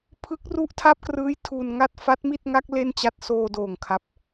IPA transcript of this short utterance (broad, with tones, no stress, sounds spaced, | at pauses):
pʰ ɯ˦˥ k̚ r u˦˥ ʔ tʰ a˦˥ p̚ k r ɯː˦˥ j tʰ u˧ n ŋ a˥˩ t̚ f a˦˥ t̚ m i˥˩ t̚ ŋ a˦˥ k̚ l e˥˩ n t͡ɕ a˥˩ t̚ s oː˧ d oː˨˩ ŋ kʰ a˦˥ p̚